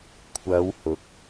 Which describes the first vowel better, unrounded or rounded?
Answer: unrounded